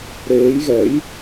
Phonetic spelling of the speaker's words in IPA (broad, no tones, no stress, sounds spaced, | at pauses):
ɾ eː j ɣ ɛ j